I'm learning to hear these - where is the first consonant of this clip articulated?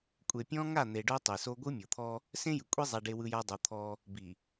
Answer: velum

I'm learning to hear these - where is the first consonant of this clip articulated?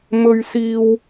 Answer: lips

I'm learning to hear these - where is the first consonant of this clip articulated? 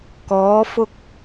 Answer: velum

